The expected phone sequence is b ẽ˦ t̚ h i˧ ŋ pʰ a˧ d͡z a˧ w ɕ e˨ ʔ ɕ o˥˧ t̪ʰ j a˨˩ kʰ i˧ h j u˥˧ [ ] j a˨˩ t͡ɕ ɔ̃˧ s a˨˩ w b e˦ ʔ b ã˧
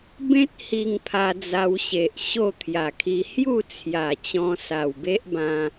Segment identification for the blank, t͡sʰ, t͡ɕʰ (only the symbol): t͡sʰ